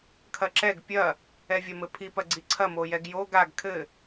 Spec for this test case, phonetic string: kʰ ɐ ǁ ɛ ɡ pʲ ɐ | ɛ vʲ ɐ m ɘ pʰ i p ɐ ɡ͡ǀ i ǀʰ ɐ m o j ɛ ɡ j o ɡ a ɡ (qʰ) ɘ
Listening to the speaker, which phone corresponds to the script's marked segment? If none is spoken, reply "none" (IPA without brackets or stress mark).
kʰ